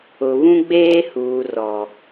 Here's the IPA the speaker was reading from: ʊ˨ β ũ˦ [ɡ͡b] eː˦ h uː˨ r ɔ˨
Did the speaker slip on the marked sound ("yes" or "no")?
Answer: no